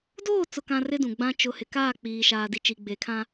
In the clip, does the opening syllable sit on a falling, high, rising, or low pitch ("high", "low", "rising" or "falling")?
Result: falling